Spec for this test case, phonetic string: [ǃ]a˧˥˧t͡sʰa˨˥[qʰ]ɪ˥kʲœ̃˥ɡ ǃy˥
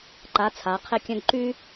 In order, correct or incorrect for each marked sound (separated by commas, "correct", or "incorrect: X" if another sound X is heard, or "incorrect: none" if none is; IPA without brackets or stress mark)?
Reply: correct, correct